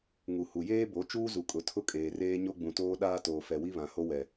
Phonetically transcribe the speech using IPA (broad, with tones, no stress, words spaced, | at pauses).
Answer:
ŋu˨ hu˨jeː˦bo˨˦ t͡ʃuː˦zu˨ kʼʊ˨tʰʊ˦ kʼeː˨reː˦ ɲo˦ɡ͡bũ˨toː˦ ɗaː˦ toː˨fɛ˨wi˦ βã˨ho˦wɛ˨